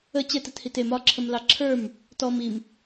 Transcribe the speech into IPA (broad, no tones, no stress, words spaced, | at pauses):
ə t͡ɕɛtɯthit em ɒǁʰəmlɑ ǁʰə˞m | tɔm im